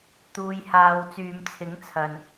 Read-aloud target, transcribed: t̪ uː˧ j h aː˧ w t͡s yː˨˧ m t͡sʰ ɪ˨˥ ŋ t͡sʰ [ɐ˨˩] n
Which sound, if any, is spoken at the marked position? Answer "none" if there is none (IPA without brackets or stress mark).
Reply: ɐ˨